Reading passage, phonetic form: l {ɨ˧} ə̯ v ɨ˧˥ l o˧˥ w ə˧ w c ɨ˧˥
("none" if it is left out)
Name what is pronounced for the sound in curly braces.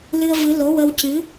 ɨ˧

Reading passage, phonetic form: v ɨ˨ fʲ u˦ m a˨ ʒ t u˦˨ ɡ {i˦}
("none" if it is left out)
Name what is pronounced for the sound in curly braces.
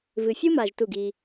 i˦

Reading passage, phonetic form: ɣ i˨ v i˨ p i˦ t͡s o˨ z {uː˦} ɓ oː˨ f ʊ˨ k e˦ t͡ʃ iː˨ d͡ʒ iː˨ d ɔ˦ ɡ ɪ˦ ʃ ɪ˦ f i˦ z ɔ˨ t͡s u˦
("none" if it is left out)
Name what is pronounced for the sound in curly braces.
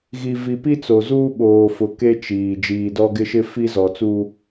uː˦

